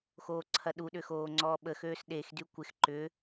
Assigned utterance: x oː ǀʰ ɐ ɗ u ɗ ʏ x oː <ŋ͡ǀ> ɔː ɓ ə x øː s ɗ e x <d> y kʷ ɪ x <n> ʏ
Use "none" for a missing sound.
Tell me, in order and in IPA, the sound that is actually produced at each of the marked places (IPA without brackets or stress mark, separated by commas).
ŋ͡ǀ, d, ǃ